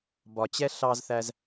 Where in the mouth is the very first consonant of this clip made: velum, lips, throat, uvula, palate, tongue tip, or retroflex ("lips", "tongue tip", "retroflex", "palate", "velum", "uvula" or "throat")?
lips